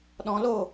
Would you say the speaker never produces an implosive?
no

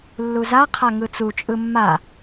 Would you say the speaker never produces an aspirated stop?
no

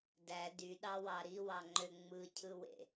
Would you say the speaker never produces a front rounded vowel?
no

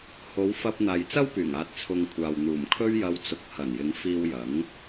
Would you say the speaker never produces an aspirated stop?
no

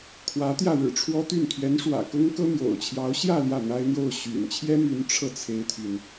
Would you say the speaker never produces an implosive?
yes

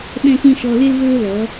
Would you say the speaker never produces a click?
yes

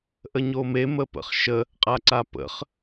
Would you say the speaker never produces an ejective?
no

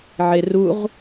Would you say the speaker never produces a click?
yes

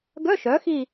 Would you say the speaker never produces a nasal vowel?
yes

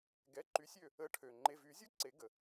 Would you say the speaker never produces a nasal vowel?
yes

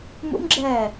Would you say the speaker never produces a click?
no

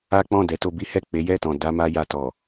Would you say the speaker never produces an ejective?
yes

